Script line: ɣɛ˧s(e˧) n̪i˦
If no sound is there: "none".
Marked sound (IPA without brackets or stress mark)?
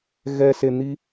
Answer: e˧